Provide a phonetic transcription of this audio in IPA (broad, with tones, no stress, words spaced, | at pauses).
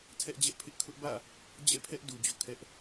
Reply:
tʰɛ˦ʔd͡ʑɛ˦ʔ pʰɪ˦ʔkʰʊ˦ʔbä̰˦˨ | d͡ʑɛ̰˦˨pʰɛ˦ʔ du˨d͡ʑo̰˦˨kʰɛ˦ʔ